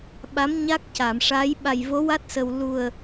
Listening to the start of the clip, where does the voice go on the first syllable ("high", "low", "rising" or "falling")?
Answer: rising